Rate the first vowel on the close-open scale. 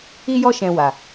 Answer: close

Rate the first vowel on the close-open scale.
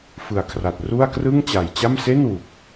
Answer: close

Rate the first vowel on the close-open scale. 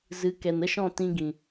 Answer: close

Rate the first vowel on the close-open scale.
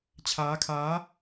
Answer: open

